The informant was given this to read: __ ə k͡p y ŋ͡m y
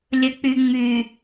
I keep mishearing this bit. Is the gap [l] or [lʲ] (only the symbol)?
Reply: lʲ